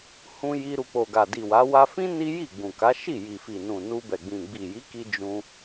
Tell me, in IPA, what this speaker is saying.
hũ˧ji˧ɾu˨ k͡po˨ɡa˨di˨wa˨˦ wa˧fĩ˦ ni˦ji˦˨ɡ͡bũ˨ka˨˦ ʃi˦˨ji˨fi˨nũ˨ nu˧bɛ˨ɡ͡bĩ˨ ɡ͡bi˨ji˨˦ki˧ d͡ʒũ˧

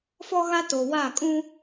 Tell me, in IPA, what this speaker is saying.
fɔ˦ɣa˦to˨ wa˦˨kʼũ˦

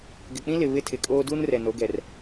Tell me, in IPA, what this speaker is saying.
ɡɪ˨k͡pĩ˦lɪ˨ βɪ˦tʰɪ˨kʼoː˦ duː˦nrɛ˨no˨˦ ɡɛ˨r

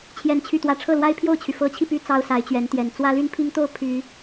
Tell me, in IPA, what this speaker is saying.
t͡ɕʰjɛ˥˧nt͡ɕʰy˥˧t̪wä˥˧ ʈ͡ʂʰɤ˥˩lwa˥ɪ̯ pʰjo˥˩ʊ̯t͡ɕʰy˩ fɤ˧˥t͡ɕʰi˧py˧˥ t͡sɑ˥ʊ̯sa˧˥ɪ̯t͡ɕɥɛ˧˥nt̪jɛ˨˩n t͡swä˥ly˥npʰi˥ŋt̪o˥˩ʊ̯ pʰy˨˩˦

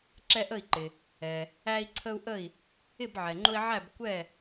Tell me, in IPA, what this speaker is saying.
ǁɛ˦ʔə˥˨i̯ǃɪ˩ | ɛ˩ | æ˦i̯ǀʰə˦u̯ʔə˥˨i̯ | ɪ˥˨bʕɛ˩ŋ͡ǃʊ˦i̯ʕæ˥˨b kʷɛ˥˨

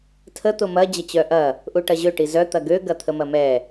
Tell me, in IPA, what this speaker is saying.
tʰə t̪ʊmɐ d͡ʑɐt͡ɕœʔɐ | ʔuʈɐʑø ʈizœ t̪ɐɡø ɡɐt̪ʰəmɐmɛ

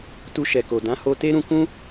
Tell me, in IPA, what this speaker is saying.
tu˧ʃɛ˨ko˨ dã˨˦ho˧te˦ɾũ˧ kũ˦

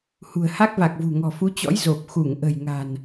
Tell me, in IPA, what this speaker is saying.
hṳ˨˩ə̯ha˦˥k̚va˨˩k̚vṳ˨˩ ŋɔ̤˨˩fu˨˦t͡ɕɔ̰˧˥j zo˨˩p̚ xu˧˩ŋʔə̤˨˩j ŋa̤˨˩n

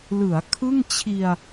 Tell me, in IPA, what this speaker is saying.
lɯ˩˦a̯ kʰɯ˥˩ŋ t͡ɕʰi˧a̯

